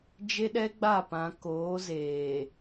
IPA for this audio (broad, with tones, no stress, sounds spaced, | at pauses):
d͡ʒ e˦ ɗ ɛ˦ ɡ͡b a˦˨ p ã˨ k oː˨˦ z eː˨